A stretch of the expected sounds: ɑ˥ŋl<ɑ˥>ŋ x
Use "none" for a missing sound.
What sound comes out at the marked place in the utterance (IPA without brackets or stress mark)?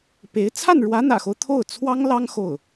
ɑ˥